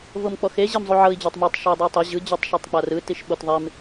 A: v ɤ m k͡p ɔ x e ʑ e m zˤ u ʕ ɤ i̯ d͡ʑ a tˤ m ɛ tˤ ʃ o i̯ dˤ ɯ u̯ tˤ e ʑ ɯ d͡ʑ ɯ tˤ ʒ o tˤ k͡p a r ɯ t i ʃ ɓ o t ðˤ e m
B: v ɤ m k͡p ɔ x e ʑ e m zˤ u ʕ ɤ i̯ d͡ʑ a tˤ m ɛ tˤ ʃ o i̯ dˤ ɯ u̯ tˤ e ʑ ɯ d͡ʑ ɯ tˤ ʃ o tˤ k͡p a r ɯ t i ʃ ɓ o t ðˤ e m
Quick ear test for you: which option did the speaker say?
B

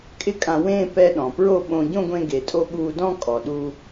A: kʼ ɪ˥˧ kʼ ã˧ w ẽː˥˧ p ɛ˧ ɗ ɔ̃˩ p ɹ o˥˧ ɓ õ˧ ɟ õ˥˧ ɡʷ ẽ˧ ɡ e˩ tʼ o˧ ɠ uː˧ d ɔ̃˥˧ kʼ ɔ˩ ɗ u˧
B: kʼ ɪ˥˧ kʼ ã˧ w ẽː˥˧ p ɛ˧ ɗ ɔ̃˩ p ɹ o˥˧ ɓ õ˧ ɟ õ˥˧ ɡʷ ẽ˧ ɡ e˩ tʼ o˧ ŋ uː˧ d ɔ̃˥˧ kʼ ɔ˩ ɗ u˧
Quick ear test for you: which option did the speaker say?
A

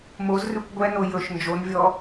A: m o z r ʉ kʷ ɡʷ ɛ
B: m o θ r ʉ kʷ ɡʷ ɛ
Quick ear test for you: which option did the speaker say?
A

